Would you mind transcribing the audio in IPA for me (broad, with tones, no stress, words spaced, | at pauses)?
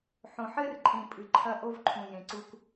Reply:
ħõ˨ħɘ˦rǃʼĩ˨ pʼɨ˨ǃʰɐ˦ ʔo˦vǃʰũ˨jẽ˨ǀu˦k